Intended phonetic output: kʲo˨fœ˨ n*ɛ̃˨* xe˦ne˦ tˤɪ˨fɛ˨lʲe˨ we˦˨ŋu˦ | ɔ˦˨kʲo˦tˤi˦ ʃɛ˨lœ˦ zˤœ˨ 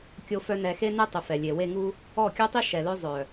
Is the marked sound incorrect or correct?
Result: incorrect: ɛ˨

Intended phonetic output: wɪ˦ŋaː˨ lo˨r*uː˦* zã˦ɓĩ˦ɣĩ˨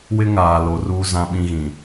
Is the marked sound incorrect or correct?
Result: correct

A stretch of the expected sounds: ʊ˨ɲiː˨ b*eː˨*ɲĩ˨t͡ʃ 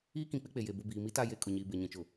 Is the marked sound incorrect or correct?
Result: incorrect: e˨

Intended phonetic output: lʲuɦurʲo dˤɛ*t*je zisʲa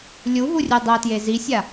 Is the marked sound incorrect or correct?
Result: correct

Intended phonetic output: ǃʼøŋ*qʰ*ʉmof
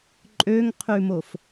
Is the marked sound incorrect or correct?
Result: correct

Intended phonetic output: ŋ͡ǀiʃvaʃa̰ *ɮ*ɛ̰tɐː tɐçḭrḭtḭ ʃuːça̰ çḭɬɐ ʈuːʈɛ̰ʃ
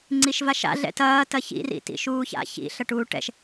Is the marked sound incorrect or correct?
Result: correct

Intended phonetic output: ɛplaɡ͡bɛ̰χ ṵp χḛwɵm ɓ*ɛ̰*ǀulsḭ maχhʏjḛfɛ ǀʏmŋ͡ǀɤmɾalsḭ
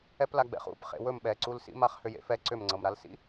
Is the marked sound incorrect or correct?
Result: incorrect: ɛ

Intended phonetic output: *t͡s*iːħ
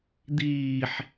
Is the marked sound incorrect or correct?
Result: incorrect: d̪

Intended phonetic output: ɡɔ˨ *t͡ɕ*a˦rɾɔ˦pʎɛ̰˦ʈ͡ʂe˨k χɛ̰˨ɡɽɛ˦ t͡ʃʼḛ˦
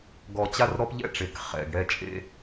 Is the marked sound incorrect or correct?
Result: correct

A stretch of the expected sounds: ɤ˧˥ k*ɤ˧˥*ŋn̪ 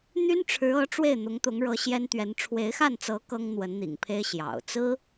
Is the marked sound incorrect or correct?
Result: incorrect: ɤ˥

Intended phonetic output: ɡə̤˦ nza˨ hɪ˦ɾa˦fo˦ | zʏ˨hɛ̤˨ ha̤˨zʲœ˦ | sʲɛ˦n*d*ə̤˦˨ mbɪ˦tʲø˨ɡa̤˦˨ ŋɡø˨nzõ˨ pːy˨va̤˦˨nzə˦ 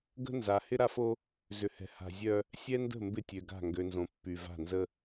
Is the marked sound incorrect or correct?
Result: correct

